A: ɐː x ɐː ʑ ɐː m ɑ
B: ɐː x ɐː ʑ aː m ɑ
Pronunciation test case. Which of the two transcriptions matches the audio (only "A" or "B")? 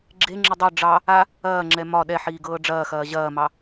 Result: A